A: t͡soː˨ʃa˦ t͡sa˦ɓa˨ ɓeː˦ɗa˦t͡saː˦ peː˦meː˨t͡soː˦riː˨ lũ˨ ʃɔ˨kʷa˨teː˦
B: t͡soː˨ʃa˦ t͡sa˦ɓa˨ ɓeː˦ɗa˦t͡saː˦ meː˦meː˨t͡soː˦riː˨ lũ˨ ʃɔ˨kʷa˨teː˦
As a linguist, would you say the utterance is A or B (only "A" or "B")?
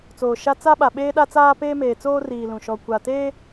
A